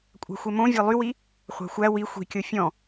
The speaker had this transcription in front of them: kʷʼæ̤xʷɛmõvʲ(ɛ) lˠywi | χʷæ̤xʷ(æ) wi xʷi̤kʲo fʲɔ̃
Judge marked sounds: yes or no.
yes, yes

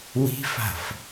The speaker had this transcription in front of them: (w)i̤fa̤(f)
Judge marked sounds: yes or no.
yes, yes

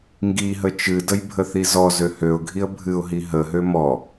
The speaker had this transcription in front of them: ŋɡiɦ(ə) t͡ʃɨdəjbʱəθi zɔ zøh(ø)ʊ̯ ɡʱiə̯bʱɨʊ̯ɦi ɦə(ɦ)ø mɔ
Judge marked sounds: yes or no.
yes, yes, yes

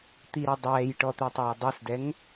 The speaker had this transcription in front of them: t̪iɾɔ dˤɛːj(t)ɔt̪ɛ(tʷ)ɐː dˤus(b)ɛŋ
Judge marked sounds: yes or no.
no, no, no

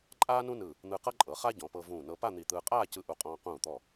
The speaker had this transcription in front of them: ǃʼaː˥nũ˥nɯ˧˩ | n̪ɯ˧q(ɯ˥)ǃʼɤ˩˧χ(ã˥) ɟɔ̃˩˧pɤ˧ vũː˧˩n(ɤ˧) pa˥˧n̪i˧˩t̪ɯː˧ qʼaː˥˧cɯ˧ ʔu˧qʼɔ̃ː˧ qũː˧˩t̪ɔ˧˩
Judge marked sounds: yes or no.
no, no, yes

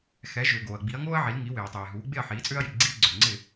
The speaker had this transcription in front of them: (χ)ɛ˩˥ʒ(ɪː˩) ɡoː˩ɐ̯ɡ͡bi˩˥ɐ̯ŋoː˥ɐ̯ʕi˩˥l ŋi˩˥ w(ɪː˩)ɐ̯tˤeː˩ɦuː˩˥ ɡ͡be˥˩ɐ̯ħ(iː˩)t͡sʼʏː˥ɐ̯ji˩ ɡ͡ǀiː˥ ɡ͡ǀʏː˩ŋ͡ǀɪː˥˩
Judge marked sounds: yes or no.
no, no, yes, no

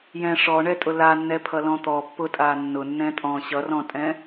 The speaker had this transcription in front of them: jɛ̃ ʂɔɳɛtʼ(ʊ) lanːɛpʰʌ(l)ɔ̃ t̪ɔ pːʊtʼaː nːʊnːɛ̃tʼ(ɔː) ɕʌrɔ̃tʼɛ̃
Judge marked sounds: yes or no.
yes, yes, no

